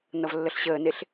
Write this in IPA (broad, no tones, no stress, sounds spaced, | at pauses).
n ʌ v lː ə ɬ ɕ əː n e ɬ